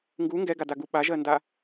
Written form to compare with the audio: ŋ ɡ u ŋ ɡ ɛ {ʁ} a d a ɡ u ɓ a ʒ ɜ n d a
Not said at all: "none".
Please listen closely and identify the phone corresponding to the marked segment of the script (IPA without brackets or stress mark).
ɡ